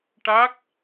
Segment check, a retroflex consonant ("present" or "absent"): present